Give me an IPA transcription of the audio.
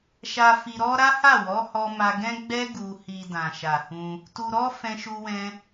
ʃ a˧ f i˧ ɾ ɔ˦ ɾ a˦ h a˦˨ w ɔ˨˦ h ɔ˧ m a˧ ɡ ɛ̃˦ ɡ͡b ɛ˦ ɡ u˧ h i˧ d ã˨ ʃ a˨ h ũ˧ | t u˧ ɾ ɔ˦ f ɛ̃˧ ʃ u˧ w ɛ̃˧

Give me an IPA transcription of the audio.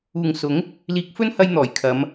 uː˨ ŋ s ʊ˨˥ ŋ | l iː˨˥ k̚ f ɵ˥ n h ɐ˧ j n̪ ɔː˨˩ j kʰ ɐ˨˧ m

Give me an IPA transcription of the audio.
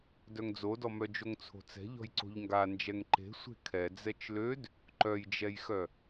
d œ ŋ d͡z o d ɔ m œ d͡ʒ o ŋ t͡sʰ o̤ t͡s ɛ̤ ʎ ɔ̤ j ǀ o̤ ʎ ŋ ɡ a n d͡ʒ ɛ ŋ ǃ e̤ sʷ e̤ kʰ ɛ d͡z ɛ t͡ʃ l ø d | ǃ œ j d͡ʒ ɛ j x œ

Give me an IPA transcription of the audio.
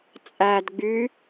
t͡sʼ æ d ɡ͡b y

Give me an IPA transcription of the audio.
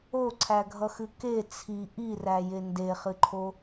o ǀʰ æ ɡʱ ʌ x ɨ k e t͡sʰ i ʔ i r æ j e n d e χ ɨ ǃʰ o

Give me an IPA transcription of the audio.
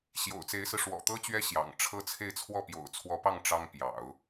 ɕ j o̰˨˩ ʊ̯ t͡s e˧˥ ɪ̯ s ɹ̩˧ ʂ w ɔ̰˨˩ t̪ ɤ˥ t͡ɕ ɥ ɛ˥ ɕ j ɑ̰˨˩ ŋ ʈ͡ʂʰ ɤ˥˧ t͡sʰ e˥˧ ɪ̯ t͡sʰ w ɔ˥˩ p j o̰˨˩ ʊ̯ t͡sʰ w ɔ˧˥ p ɑ˥˩ ŋ ʈ͡ʂ ɑ˥ ŋ p j ɑ̰˨˩˦ ʊ̯

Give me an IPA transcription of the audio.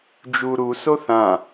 d͡ʒ u ɾ u s o θ ã

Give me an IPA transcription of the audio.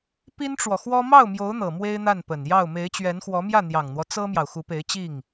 p i˥ n ʈ͡ʂ w ɔ˨ x w ɔ˥ m ɑ˥˩ ʊ̯ m j o˧˥ ʊ̯ n̪ ɤ˨˩ m w e˥ ɪ̯ n̪ a˥˩ n p ə˨˩ n j ɑ˥˩ ʊ̯ m e˧˥ ɪ̯ t͡ɕ ɥ ɛ˧˥ n x w ɔ˧˥ m j ä˥˩ n̪ j ɑ˨˩ ŋ n̪ w ɔ˦ t͡s ɤ˥ m j ɑ˨ ʊ̯ x u˧˥ p e˧˥ ɪ̯ t͡ɕ i˥˩ ŋ

